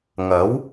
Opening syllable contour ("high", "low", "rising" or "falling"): rising